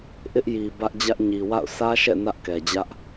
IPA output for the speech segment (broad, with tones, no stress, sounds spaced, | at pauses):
ʔ ɪ˦ ʔ j i˨ b ä˦ ʔ d͡ʑ ä˦ ʔ ɲ i˨ w a̰˦˨ ʊ̯ s ä˦ ʃ ɛ̰˦˨ n ä˦ ʔ k ɛ˨ d͡ʑ ä˦ ʔ